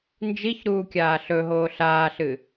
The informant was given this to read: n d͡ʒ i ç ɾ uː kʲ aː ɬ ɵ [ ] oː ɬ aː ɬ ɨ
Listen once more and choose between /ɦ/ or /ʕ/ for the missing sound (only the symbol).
ɦ